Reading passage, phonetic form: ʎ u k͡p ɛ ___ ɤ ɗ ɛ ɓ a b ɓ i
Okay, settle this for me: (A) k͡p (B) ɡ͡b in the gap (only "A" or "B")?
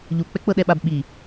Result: A